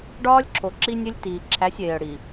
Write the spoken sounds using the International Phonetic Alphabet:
ɖɒː˦lʲǁʰo˨ ǁi˦nʲe˦lʲ tiː˨ǁʰæ˨˦sʲeː˨ə̯ ɽi˨

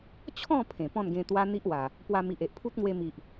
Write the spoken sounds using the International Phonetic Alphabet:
t͡ɕʰɔ̃˥˧ pʰẽ˨˩pɔ̃˥˧nɡẽ˧ t̪wa˦n̪i˦ʔwa˨˩ | pwa˧mi˨ʔ e˨ʔpʰu˦t̚ŋwe˧mi˨ʔ

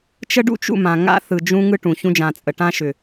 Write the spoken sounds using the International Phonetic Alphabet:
t͡ʃə˦ɖṵ˦t͡ʃṵ˦˨ mã˨ŋa̰˦ θɯ˨d͡ʒũ˦ŋɯ˦ ʈũ˨ çũ˦d͡ʒã˨t͡sʼə˨ ʈã˦ʃʏ˨

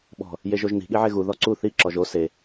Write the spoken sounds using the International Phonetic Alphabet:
ɓɔ̤ | jeʒoʒni̤ ɠiʕeɣu ðɔǀu θi ǁɔʒo se

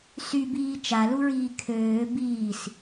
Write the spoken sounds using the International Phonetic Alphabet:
sybiː t͡ʃaluɹiː kʰøː biːs

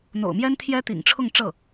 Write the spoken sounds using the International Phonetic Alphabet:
n̪o̰˨˩ʊ̯mjɛ˥n t̪ʰjɛ˥t̪ḭ˨˩ŋʈ͡ʂʰʊ˥˧ŋ ʈ͡ʂɤ˥˩

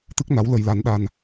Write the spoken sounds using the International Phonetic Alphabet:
t̪ɨ˦˥k̚na˨˦w lə˧jla˨˦nɗa˧n

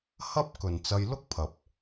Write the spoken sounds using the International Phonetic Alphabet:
hɐ˥p̚ kɵ˨nt͡sɐ˧j lʊ˥k̚pʰɐ˨p̚

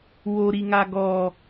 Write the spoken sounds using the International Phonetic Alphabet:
woɾiŋa ɡɔ

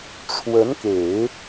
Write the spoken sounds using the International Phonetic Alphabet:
ʈ͡ʂʰwə˧˥nke˨˩˦ɪ̯

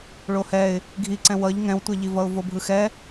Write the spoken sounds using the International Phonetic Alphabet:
ɭohɛɪ̯ | ɡʱiǀɛ̃ wʌʎ ŋɛ̃wtʷɛʎivʌʊ̯ vobʱɯxɛ

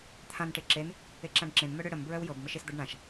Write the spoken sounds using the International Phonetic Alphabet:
t̪ʰãn ʈeǁen | eǁãɖǁẽn mœɽʏ ɽəm bɹœwjɤb məʃesd̪ɤɖɳãʃ

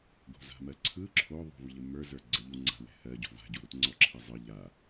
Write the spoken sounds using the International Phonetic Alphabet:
ɡo̤za̤mɜǀʰɯ ǁʰoðˤo̤v ʎəmə˞zə˞ ɡ͡ǀəʎuŋ͡ǀa̤wɛ̤ hɜɟo̤ va̤ɟuɾutŋ͡ǀɔ ǁʰɛzˤɯ ʎa

